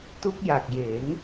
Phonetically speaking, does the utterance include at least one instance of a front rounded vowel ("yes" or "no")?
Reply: no